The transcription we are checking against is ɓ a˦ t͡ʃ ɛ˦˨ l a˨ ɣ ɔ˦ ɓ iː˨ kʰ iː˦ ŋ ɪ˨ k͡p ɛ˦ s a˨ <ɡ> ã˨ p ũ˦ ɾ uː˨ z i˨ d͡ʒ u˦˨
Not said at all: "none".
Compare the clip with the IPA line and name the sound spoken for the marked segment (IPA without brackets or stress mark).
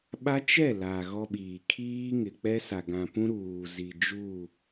ɡ